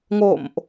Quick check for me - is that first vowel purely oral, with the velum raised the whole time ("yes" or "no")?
yes